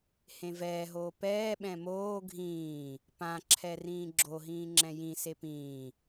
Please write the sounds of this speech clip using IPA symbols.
hẽvɛːɦoː pɛːɓɛ̃ moː ɡʱĩː | pãǁʰɛ rĩːɡ͡ǁoɦĩː ŋ͡ǁɛ̃jĩse pĩː

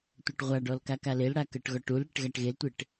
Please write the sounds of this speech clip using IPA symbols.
tʷɤʈʁʷaɖɔl kakalelɽa kɤʈɣɔʈulɽeʈ ɣaʈɣeltʷeʈ

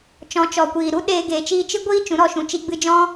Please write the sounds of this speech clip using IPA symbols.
t͡ʃɔ̃˨˦t͡ʃɔ˨kʷiː˨ ɾu˦ɗeː˧ ɡeː˨t͡ʃiː˧t͡ʃɨ˦ ɡʷiː˦ t͡ʃũ˨˦ɾɔ˧ʃũ˨t͡ʃi˧ ɡ͡bɨ˧d͡ʒɔ̃˦

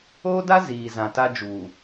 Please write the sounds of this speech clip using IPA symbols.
oː˦da˦ ziː˨ zã˨ta˦d͡ʒuː˨

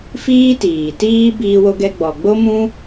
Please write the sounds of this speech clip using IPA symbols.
fiː˦tiː˨tiː˦ biː˧wo˧ɡɛ˧ ɡ͡bɔ˨ɡ͡bo˦mũ˦

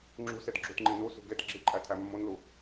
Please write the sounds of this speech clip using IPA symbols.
ŋ͡ǁṳsed ɡ͡ǁutŋ͡ǃinusṳ ɡet ɡ͡ǁiǃʼæ tʰæmːonlu

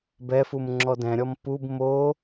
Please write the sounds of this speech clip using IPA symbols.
bɛfum ŋ͡ǁɔdɛ̃ɾʲɔm pub mo

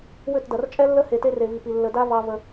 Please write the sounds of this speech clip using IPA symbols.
wʏ˦˨tdɐ˨r t͡ʃʼɛ˦lːə˦he˨ te˦re˨vi˨pi˨ lːə˨da˦ vɑ˦və˦

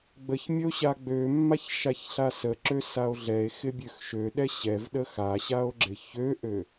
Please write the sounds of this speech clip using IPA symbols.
ɡ͡bəç mʲəo̯ɕaɡ͡bømːaç ʃaçɬasəǁø sao̯ɮɛe̯xɪ bʲøxʃøɗɛ ɕɛv ɗəxaɕao̯ ɡ͡ǁɪçøʔø

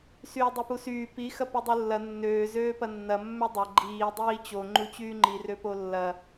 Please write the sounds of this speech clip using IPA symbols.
syːdˤypusyː pi xɐpudˤulːɐ nːøː zøːpɐnːɐ mːødˤɐ ɡ͡ǃiː dˤiːt͡ɕo ŋ͡ǃut͡ɕyːŋ͡ǃi røpolːɐ

